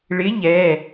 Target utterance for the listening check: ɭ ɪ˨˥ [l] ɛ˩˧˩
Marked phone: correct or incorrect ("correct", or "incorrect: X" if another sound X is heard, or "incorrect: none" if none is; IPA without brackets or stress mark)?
incorrect: ʎ